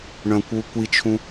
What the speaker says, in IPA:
ɳ œ̃ kʷ w u kʷ i t͡ʃʰ ũ

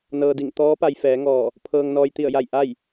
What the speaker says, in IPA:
n ɤː˧ d i˧˩ ŋ t̪ ɔː˧˥ p a˧ j f ɛː˩˧ ŋ ɔː˧˩ | pʰ ɤː˧ ŋ n ɔː˧ j t̪ i˧˩ ə̯ j a˧˩ j ʔ a˥˨ j

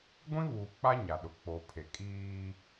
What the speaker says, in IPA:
ɡʷ ĩ˦ β uː˨ k͡p a˦ ɲ a˨ ɗ ʊ˨ k͡p o˨ pʰ e˨ kʼ iː˦

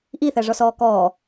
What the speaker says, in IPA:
ʔ i θ æ ʐ ɔ s ɔː k ɔː

